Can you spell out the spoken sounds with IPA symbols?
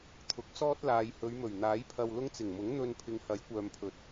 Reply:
t̪ʰ ʊ˨˥ k̚ s ɔː˥ t̚ l aː˨ j h ɵ˨˧ ɥ m ɵ˨˩ ɥ n̪ aː˨˥ j pʰ ɐ˧ w l ʊ˥ ŋ t͡s ɪ˨˩ ŋ m ʊ˨˥ ŋ n̪ ɵ˧ n pʰ ɪ˨˧ ŋ h ɐ˨˥ j kʷ œː˨ m pʰ ɵ˨˥ t̚

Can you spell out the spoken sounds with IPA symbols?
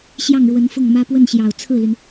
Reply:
ɕ j ɑ˥˩ ŋ ɻ w ə˧˥ n f ʊ˥˩ ŋ m ä˥ p w ə˥˩ n ɕ j ɑ˨˩ ʊ̯ t͡sʰ ɹ̩˥˩ l y˩ n

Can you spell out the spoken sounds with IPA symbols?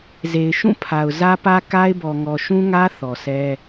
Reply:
z e˨ ɪ̯ ʃ ũ˦˨ pʰ a˨ ʊ̯ z ä˦ p ä˦ k a˦ ɪ̯ b ɔ˨ ŋ ɔ˨ ʃ ũ˦ ŋ ä˦ θ ɔ˨ s ɛ˦

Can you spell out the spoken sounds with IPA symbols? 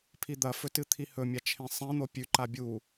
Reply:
pʰ i d̪ ɐ f ɵ t ɨ t̪ʰ i h ɵ mʲ a t͡ʃʰ ẽ sˤ ẽ n̪ o pʲ ʉ ǃ a bʲ u

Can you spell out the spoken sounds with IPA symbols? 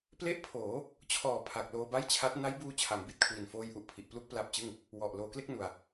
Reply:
p l e˦˥ ʔ pʰ oː˩˦ | t͡ɕʰ ɔː˩˦ pʰ a˨˩ k̚ l oː˧ b a˥˩ j t͡ɕʰ a˦˥ t̚ n a˦˥ j b uː˧ t͡ɕʰ a˩˦ m b i˨˩ t̚ kʰ w i˨˩ n f oː˧ j ʔ u˨˩ ʔ pʰ i˨˩ ʔ p l u˥˩ k̚ p l a˦˥ p̚ t͡ɕ ɯ˥˩ ŋ | w ɔ˨˩ ʔ l oː˧ k l e˥˩ k̚ n u˧ a̯

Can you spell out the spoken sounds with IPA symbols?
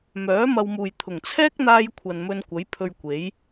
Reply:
m œː˨˥ m ɐ˨ w m uː˨˩ j t̪ʰ ʊ˨˩ ŋ t͡sʰ ɛː˥ k̚ n̪ aː˧ j kʷʰ ɐ˨ n m ɵ˧ n kʷ ɐ˨˥ j pʰ ɵ˧ ɥ kʷ e˨˥ j

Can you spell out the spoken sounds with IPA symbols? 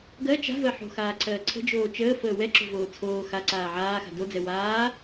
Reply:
ɡ ɜ t͡ʃ a̤ v ɜ ħ o̤ x aː ǀʰ ɜː ǀʰ ə̤ d͡ʒ oː t͡ʃ əː f əː w ɛ ǁ o̤ v oː t͡sʰ oː x a ǀ aː ʕ aː x a̤ d o d͡z ɛ w aː

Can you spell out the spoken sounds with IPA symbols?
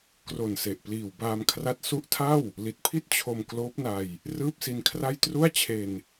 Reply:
k r o˨˩ n s e˨˩ ʔ p l iː˨˩ w b aː˧ m kʰ r a˦˥ t̚ s u˦˥ ʔ tʰ a˥˩ w | l i˨˩ t̚ pʰ i˥˩ t̚ t͡ɕʰ o˧ m k l oː˦˥ p̚ n a˧ j | r ɯː˥˩ p̚ s i˧ n kʰ r a˥˩ j t r u˥˩ a̯ t͡ɕʰ e˧ n

